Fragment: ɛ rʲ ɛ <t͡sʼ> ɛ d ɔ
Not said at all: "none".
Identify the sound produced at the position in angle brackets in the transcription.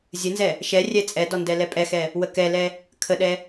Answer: t͡sʼ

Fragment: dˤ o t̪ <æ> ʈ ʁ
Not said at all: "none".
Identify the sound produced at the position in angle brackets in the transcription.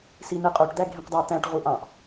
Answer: æ̃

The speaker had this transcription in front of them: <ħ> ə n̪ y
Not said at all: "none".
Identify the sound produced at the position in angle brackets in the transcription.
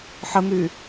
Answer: ħ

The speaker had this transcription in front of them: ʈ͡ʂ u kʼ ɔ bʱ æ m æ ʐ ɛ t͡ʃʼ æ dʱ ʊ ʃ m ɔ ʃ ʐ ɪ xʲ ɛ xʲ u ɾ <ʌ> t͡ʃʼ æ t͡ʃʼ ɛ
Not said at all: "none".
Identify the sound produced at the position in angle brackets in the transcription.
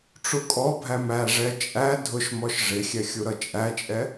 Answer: ʌ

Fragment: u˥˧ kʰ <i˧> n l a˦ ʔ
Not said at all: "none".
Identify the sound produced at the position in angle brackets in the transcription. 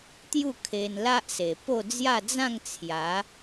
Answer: e˧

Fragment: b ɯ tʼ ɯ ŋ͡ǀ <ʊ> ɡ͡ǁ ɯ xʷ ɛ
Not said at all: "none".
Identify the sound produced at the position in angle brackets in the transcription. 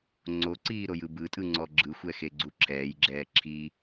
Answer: ɔ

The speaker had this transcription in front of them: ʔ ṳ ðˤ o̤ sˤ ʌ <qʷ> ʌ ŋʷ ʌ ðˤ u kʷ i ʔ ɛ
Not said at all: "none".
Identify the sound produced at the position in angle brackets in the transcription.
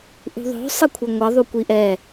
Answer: kʷʰ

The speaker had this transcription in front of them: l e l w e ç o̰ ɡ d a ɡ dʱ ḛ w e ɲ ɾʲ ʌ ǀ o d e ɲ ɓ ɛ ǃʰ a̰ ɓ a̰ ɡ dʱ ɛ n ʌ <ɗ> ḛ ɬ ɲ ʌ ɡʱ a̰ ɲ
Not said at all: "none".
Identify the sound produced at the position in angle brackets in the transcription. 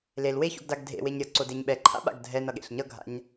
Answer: ɠ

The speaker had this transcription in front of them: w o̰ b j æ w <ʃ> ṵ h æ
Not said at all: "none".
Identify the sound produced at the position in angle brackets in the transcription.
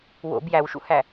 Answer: ʃ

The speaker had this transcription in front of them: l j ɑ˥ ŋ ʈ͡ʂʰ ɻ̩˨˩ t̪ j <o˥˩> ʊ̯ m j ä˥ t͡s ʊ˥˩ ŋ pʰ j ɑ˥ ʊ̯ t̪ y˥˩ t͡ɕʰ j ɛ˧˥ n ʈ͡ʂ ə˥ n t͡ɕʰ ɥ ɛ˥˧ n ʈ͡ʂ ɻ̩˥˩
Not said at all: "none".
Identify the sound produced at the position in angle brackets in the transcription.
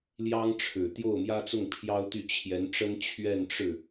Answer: o˥˩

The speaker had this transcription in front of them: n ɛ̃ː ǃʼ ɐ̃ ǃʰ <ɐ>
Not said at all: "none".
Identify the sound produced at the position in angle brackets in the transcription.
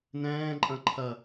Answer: ɐ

